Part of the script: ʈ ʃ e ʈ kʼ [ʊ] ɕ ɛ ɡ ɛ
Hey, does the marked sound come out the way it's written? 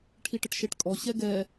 no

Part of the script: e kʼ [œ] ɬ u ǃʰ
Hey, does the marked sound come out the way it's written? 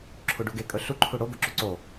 no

